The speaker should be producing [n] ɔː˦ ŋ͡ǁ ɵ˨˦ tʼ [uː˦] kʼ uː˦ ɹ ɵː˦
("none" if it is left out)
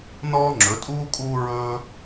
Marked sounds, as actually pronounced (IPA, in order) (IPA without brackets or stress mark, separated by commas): n, uː˦